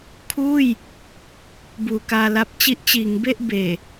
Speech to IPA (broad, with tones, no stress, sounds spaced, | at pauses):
kʰ uː˥˩ j | b uː˨˩ k aː˧ l a˦˥ p̚ t͡ɕ i˦˥ ʔ t͡ɕ iː˩˦ ŋ b e˥˩ ʔ b eː˨˩